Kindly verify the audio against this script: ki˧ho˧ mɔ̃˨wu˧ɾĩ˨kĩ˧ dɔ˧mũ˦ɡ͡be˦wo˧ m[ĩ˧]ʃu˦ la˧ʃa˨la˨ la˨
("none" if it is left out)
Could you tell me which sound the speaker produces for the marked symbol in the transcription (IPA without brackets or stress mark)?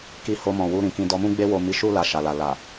i˧